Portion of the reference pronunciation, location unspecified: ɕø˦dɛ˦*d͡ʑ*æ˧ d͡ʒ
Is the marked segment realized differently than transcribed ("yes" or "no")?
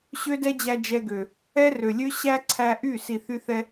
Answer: no